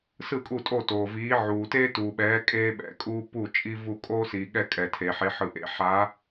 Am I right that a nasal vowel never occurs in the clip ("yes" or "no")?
yes